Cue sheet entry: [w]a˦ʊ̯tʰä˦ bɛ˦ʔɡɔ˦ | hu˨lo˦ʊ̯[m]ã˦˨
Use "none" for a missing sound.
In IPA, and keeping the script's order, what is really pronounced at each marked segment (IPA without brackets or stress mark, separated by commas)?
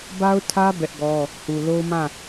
b, m